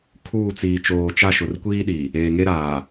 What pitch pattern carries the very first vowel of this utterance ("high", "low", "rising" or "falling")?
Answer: falling